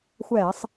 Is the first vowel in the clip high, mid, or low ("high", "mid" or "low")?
mid